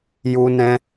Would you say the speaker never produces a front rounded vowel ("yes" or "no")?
yes